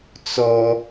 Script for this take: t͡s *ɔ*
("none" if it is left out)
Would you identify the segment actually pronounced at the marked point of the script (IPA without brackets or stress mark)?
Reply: ɔ